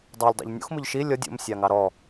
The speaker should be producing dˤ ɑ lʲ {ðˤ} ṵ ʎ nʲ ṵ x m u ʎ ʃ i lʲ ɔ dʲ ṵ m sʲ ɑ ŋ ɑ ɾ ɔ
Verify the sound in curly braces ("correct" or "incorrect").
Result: incorrect